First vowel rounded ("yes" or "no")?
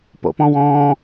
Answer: yes